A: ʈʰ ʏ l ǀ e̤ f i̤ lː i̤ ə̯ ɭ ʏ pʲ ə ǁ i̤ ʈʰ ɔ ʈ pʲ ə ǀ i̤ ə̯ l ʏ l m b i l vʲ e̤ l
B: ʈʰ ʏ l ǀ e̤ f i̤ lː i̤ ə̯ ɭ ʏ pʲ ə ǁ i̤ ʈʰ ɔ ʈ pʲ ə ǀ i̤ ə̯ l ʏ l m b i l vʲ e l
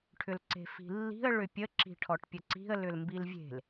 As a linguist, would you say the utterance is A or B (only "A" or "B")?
A